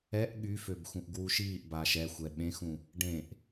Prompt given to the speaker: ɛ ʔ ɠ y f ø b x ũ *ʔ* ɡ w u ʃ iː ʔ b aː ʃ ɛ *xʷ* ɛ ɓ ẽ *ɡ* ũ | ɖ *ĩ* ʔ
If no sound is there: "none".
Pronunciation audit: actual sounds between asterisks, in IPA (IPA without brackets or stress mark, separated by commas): ʔ, xʷ, x, ẽ